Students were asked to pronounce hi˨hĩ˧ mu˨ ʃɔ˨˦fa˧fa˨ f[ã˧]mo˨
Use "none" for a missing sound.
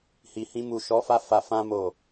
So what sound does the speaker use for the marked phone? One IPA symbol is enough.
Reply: ã˧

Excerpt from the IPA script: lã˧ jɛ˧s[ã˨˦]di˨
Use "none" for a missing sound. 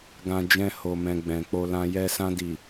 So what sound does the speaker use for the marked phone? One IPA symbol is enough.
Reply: ã˧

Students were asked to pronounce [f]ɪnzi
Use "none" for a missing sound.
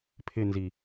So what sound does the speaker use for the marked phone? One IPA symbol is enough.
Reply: pʰ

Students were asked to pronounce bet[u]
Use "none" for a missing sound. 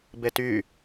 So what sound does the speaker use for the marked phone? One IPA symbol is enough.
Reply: y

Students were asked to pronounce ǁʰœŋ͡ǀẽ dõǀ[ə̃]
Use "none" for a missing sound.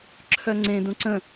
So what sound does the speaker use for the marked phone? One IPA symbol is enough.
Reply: ə̃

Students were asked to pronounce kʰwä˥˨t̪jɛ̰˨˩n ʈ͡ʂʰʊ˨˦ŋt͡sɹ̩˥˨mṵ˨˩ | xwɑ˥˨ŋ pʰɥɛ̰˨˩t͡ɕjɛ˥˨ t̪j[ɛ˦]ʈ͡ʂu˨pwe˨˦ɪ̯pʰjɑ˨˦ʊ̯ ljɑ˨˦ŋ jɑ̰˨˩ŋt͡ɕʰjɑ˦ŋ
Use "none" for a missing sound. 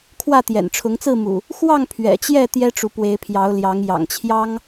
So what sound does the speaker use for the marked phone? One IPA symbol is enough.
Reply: ɛ˦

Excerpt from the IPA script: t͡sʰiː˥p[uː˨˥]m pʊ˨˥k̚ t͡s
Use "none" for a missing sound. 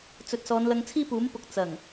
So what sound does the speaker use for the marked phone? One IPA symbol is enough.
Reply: uː˨˥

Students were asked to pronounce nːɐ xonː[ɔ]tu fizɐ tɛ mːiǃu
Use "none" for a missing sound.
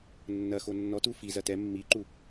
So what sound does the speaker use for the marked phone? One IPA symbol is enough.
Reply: ɔ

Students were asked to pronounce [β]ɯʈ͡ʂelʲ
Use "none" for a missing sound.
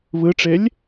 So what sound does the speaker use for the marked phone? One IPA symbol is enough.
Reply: β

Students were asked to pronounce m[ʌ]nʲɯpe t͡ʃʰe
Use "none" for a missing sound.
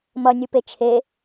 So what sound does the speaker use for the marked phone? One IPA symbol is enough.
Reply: ʌ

